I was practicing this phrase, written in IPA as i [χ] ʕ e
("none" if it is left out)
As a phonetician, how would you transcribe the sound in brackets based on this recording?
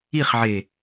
χ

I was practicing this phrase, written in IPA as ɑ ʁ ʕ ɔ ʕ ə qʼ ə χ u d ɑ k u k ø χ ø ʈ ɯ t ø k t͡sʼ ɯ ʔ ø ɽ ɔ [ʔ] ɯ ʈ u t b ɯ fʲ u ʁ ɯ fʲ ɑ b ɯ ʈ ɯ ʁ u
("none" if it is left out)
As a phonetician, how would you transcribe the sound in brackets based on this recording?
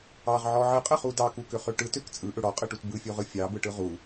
qʼ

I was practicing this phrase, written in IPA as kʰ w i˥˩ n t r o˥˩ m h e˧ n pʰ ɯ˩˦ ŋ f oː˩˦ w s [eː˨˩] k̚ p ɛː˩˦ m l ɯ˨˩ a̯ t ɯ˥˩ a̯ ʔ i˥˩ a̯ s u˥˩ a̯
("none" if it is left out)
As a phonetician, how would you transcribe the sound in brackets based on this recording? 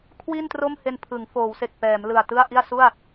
e˨˩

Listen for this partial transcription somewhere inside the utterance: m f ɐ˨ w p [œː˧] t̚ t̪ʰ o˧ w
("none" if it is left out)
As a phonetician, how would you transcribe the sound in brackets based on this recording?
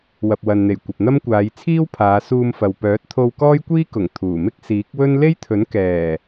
œː˨˥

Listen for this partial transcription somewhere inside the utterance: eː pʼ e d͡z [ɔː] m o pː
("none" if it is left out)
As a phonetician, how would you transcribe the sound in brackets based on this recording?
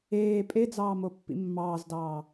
ɑː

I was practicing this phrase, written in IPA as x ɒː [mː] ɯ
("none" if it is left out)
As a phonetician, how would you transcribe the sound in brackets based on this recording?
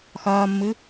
mː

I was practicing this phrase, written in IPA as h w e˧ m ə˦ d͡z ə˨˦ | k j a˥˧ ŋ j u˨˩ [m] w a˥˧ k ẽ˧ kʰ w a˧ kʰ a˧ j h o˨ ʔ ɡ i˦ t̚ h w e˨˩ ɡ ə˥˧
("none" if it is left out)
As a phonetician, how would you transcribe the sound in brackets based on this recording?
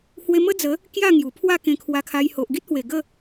pʰ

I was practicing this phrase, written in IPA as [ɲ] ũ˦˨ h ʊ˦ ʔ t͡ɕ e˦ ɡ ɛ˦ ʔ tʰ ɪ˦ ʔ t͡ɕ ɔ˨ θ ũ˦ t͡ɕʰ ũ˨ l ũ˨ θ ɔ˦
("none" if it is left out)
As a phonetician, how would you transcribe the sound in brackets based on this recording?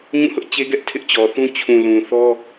ɲ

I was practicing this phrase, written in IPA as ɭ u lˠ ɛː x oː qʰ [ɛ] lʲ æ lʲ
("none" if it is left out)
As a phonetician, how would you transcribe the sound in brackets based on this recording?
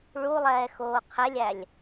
ɛ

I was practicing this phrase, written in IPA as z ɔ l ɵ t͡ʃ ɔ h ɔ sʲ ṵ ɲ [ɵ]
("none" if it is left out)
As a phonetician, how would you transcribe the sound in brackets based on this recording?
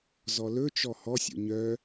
œ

